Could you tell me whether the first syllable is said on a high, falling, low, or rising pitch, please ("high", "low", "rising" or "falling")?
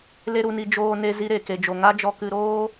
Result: high